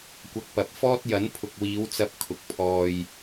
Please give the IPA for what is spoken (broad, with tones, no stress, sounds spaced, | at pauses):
kʷ ɐ˨ k̚ p ɐ˨ p̚ f ɔː˥ t̚ j ɐ˨˥ n pʰ ʊ˨ k̚ w iː˨˧ w t͡s ɐ˧ p̚ kʰ ʊ˨ k̚ pʰ ɔː˧ j